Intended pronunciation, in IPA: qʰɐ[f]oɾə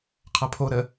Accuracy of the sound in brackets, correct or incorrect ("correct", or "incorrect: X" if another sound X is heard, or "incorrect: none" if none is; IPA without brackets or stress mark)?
incorrect: pʰ